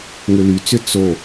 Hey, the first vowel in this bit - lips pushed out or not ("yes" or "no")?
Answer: yes